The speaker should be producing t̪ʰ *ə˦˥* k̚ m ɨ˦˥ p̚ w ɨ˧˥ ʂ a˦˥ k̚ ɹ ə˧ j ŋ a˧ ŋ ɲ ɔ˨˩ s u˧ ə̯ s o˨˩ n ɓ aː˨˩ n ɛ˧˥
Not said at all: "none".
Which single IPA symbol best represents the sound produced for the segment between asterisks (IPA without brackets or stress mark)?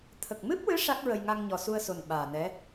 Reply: ə˨˩